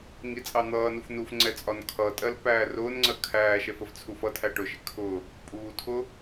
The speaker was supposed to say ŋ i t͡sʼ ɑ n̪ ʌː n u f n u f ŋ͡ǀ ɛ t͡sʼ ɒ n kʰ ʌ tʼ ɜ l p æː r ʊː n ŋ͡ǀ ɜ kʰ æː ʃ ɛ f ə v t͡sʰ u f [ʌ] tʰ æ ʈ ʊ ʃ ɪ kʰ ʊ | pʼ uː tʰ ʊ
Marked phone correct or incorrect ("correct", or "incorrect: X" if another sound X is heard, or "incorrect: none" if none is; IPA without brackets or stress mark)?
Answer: correct